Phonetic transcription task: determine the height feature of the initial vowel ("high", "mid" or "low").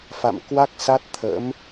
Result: low